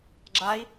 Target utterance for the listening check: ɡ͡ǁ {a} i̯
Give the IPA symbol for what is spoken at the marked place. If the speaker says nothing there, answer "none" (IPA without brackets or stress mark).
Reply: a